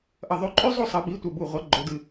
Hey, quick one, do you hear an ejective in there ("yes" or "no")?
yes